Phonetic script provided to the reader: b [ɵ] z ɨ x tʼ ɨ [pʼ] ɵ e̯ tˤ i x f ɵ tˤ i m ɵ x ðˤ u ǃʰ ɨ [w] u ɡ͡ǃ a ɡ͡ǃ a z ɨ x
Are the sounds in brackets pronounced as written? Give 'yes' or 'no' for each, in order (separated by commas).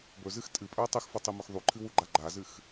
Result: yes, yes, yes